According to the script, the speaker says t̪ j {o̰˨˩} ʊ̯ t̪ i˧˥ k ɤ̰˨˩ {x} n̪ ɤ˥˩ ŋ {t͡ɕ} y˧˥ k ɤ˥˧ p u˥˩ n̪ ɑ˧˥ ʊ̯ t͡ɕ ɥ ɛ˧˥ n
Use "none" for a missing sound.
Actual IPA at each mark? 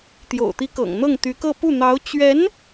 o̰˨˩, ŋ, t̪

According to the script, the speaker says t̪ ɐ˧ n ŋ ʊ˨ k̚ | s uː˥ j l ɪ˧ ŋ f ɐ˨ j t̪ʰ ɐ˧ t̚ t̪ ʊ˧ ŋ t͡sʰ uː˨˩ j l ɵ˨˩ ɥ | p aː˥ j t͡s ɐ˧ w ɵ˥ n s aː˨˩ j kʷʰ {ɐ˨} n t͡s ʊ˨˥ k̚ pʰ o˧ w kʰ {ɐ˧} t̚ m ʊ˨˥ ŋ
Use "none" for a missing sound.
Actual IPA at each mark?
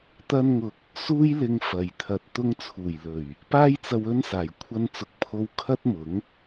ɐ˧, ɐ˥

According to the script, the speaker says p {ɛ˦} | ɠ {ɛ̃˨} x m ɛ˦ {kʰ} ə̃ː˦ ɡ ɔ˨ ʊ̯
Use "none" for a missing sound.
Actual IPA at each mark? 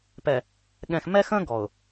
ɛ˨, ɛ̃˨, x

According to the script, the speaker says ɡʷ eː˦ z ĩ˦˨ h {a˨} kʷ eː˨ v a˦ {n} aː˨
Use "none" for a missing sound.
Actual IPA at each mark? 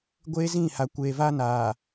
a˨, n

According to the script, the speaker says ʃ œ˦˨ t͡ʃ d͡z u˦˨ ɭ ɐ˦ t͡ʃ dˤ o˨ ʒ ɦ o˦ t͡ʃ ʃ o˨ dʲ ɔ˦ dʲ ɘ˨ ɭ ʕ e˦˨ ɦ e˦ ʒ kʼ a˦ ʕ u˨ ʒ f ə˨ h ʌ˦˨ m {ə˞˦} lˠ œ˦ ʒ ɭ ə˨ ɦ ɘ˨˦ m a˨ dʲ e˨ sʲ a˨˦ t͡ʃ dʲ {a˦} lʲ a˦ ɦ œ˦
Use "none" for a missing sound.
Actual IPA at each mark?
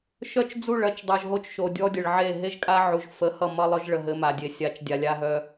ʌ˦, a˨

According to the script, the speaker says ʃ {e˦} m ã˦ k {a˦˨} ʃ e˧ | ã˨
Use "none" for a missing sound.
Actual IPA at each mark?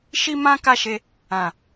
i˦, a˦˨

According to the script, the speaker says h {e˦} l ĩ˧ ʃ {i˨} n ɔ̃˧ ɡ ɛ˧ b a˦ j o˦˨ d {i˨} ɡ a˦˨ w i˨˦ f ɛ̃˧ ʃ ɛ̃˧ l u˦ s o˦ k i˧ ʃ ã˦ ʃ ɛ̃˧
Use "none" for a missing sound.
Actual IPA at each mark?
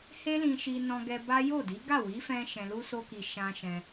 e˦, i˧, i˨˦

